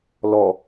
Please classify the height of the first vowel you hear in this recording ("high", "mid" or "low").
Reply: mid